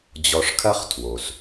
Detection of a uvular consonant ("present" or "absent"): present